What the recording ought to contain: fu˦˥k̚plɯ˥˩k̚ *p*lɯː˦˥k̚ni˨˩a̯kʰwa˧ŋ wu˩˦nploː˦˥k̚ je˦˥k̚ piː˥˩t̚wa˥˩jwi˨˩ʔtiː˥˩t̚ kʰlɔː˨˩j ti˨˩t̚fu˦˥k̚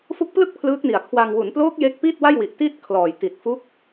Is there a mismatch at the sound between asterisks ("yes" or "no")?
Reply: yes